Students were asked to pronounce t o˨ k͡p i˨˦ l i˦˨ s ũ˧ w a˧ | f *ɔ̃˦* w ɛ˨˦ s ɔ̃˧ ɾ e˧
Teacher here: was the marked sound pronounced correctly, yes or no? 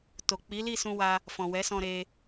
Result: no